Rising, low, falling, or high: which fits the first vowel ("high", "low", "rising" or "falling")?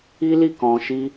high